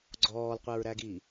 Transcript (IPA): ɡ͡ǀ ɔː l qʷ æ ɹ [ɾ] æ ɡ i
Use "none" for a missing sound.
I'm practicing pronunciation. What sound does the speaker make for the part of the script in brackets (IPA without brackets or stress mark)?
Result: ɾ